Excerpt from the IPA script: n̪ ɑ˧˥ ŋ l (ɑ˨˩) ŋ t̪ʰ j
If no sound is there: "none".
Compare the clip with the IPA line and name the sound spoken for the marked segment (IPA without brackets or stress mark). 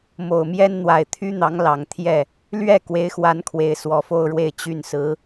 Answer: ɑ˨˩